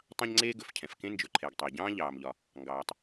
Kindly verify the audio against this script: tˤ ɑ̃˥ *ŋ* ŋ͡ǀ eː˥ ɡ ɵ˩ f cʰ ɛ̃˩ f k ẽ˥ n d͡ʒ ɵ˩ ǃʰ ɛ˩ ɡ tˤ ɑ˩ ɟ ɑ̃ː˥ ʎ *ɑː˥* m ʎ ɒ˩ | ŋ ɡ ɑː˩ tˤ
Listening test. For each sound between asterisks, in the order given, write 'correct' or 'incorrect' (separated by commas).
incorrect, incorrect